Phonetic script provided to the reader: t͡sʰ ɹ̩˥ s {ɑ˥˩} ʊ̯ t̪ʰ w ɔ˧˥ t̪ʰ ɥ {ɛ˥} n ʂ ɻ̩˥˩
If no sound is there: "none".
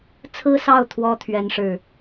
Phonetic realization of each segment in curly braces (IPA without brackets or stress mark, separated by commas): ɑ˥˩, ɛ˥˧